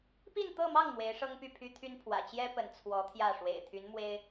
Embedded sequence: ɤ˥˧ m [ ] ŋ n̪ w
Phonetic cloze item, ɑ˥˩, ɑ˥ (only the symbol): ɑ˥˩